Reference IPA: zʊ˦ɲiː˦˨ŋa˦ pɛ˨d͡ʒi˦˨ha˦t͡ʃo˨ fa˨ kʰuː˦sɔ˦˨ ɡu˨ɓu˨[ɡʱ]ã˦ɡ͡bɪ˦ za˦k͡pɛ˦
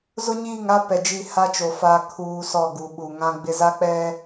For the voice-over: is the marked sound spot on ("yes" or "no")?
no